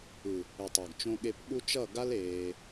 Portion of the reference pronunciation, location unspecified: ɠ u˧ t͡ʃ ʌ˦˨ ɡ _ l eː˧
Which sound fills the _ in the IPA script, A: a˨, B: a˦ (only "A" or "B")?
B